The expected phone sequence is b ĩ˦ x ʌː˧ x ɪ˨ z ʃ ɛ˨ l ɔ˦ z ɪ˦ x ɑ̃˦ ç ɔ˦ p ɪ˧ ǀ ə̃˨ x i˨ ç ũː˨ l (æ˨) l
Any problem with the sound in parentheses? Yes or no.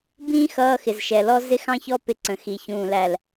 no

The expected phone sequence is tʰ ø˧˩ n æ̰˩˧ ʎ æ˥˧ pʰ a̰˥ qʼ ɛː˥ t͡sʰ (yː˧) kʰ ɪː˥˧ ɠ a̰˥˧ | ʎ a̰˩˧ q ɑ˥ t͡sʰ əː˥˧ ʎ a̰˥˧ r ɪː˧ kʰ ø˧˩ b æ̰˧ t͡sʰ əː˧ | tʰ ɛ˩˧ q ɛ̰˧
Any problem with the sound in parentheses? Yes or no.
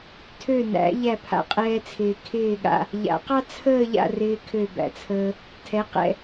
yes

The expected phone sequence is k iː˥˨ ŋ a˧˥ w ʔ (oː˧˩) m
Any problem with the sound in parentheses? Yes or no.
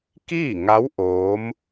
yes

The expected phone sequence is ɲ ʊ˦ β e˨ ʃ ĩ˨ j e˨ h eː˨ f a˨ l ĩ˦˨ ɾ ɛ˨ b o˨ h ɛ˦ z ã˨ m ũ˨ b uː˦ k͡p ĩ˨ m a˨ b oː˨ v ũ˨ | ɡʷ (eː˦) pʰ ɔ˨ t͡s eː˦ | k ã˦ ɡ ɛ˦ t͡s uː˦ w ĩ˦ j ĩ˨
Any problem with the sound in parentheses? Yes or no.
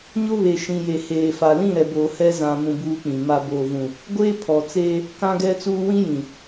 no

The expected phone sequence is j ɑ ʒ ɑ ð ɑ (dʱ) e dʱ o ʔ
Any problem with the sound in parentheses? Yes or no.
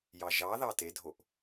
yes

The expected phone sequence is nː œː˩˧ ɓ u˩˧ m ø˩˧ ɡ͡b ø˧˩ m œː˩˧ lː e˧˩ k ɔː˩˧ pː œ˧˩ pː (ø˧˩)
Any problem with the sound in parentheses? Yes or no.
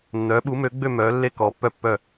yes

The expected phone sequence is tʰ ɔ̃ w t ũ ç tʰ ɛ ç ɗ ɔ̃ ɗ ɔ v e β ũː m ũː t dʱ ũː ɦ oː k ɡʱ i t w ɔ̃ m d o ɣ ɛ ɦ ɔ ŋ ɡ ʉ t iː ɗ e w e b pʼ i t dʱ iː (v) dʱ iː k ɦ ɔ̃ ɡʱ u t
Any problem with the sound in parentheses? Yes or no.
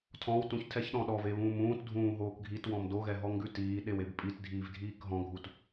no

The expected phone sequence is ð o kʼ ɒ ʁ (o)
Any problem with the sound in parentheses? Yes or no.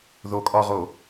no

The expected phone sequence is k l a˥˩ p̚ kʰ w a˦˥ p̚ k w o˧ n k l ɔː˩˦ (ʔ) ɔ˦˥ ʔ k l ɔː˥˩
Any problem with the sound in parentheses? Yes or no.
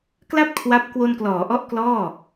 no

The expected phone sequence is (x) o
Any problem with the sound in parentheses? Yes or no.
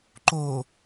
yes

